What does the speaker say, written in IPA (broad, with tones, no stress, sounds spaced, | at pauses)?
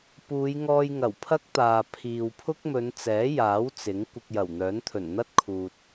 p uː˨˧ j ŋ ɔː˧ j ŋ ɐ˨˩ w pʰ ɐ˥ k̚ t̪ aː˨ pʰ iː˨ w pʰ ʊ˥ k̚ m ɵ˨˧ n t͡s ɛː˨˥ j aː˨˥ w t͡s ɪ˨˥ ŋ kʷ ɪ˧ k̚ j ɐ˨˩ w n̪ œː˨˥ n t̪ʰ ɵ˨˩ n n̪ ɐ˥ t̚ kʰ uː˧ t̚